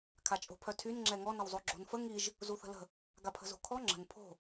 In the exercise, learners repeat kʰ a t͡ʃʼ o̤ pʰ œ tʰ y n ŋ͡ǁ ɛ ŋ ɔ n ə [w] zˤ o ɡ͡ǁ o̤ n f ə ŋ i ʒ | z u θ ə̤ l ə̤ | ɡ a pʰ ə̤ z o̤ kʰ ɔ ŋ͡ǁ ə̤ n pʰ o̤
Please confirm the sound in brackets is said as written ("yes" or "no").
yes